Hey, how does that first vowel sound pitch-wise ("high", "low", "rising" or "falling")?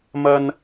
high